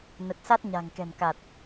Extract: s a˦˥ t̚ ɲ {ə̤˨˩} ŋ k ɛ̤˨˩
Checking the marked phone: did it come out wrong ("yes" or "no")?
yes